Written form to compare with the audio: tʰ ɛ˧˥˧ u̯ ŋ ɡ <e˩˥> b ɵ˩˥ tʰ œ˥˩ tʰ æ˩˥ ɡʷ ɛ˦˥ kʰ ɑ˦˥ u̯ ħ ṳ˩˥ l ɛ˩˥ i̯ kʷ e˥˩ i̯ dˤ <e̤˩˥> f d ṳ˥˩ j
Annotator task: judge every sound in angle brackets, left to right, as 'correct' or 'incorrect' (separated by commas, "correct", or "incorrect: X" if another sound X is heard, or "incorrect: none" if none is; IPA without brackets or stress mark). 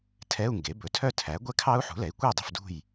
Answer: correct, incorrect: e̤˥˩